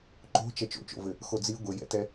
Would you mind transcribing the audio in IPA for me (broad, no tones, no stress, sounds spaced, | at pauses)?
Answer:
ǃ o̤ t͡ʃ ɛ t͡ʃ o̰ t͡ʃ o̰ v ɘ | x o d͡z i ɡʷ ɘ j ɛ̰ t ɛ